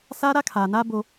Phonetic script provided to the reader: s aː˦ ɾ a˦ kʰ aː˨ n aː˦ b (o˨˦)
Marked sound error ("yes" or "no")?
yes